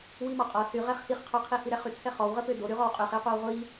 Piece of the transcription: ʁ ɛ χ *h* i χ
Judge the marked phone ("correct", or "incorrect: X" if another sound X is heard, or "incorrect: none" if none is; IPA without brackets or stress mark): correct